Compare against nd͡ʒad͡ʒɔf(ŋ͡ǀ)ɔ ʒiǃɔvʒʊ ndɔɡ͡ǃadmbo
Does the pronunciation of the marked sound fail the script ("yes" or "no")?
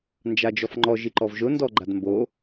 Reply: yes